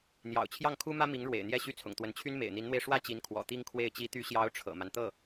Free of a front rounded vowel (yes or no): no